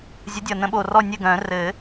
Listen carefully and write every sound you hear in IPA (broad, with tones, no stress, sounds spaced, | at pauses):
zʲ ʌ˨˦ dʲ ʌ˨˩ n ə̃˨˩˦ ɓ o˨˩ r ɔ˦˨ nʲ ɘ˦˨ ɡ œ̃˨˩˦ r ɘ˨˩˦